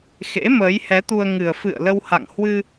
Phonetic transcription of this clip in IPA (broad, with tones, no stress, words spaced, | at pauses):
xḛ˧˥məː˨˦jhɛ˨˦t̪u˧ə̯ ŋɨ˨˩ə̯fɨ̰˧˨ə̯lə˧w ha̰˧˨ŋhwɨ˧